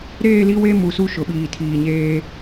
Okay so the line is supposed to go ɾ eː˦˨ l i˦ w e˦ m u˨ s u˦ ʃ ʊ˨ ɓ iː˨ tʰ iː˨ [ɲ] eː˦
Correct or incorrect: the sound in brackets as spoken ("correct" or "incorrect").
correct